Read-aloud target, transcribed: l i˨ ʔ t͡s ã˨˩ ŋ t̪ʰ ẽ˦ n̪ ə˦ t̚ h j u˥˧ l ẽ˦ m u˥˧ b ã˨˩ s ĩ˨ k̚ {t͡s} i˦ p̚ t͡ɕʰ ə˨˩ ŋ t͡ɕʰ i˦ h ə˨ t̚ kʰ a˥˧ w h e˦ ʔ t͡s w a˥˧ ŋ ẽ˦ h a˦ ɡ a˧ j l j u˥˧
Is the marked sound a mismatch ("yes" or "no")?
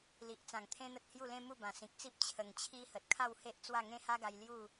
no